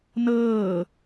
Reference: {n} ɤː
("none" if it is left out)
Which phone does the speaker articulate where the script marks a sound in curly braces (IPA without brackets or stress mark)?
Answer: n